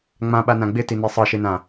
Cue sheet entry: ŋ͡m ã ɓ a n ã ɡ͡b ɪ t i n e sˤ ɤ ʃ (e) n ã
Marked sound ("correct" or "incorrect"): correct